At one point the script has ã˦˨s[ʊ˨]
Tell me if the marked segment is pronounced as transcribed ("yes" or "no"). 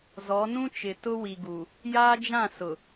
yes